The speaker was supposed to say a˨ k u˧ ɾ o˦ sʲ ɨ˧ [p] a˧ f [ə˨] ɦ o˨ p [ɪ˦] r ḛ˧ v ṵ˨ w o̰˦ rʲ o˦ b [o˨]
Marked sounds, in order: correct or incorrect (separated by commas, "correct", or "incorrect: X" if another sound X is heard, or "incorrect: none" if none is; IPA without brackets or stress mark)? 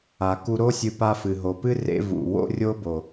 correct, incorrect: ɨ˨, incorrect: ɨ˦, correct